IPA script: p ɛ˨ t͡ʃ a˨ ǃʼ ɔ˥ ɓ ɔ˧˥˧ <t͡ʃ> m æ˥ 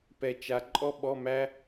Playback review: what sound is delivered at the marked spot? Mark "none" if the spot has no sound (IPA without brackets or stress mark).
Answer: none